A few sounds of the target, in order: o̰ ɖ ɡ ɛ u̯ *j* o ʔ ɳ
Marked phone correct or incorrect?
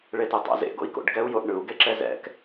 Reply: correct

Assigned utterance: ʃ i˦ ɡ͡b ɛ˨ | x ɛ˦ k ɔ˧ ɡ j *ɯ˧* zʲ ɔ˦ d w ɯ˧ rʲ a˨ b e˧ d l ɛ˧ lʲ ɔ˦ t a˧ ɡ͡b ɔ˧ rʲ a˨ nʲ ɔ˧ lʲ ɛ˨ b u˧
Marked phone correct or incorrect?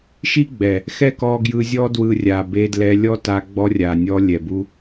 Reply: correct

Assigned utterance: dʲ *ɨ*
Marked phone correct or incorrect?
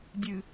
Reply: correct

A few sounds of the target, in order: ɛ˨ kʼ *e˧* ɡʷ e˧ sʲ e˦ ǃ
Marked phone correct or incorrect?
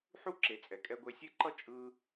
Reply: incorrect: ɛ˧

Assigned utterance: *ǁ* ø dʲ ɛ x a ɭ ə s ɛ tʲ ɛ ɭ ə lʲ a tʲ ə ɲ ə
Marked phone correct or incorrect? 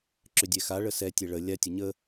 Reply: correct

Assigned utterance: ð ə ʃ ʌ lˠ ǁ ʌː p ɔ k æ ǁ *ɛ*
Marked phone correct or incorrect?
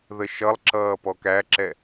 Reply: correct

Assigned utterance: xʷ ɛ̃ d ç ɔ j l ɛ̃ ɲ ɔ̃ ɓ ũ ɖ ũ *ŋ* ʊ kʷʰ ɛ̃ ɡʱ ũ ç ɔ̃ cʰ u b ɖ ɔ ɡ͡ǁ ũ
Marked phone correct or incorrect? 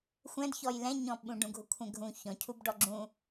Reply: incorrect: ɡʱ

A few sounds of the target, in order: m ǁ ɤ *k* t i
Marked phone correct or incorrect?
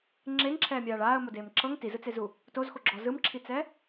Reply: incorrect: ŋ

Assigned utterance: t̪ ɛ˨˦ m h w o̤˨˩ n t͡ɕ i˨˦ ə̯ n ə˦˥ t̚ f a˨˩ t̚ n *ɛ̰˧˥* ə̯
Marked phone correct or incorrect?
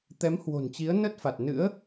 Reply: incorrect: ɨ̰˧˥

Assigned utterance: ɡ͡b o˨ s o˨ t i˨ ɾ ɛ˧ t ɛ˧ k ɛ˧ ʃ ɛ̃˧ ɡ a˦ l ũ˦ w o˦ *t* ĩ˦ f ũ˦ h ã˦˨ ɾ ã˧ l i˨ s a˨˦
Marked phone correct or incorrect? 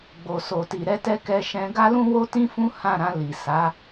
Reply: correct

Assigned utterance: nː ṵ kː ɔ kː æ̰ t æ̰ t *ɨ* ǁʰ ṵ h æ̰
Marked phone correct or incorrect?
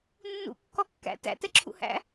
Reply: incorrect: ɛ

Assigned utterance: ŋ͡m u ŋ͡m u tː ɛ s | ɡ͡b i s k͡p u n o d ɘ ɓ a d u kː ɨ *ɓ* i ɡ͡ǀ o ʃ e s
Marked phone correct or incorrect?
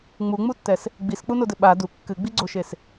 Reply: incorrect: ɡ͡b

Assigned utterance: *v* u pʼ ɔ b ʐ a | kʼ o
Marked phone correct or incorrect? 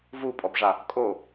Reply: correct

